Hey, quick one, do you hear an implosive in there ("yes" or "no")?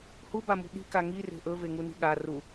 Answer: yes